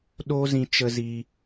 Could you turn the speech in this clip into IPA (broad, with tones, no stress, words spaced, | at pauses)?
ɗo˦zĩ˧ t͡ʃə˧zi˧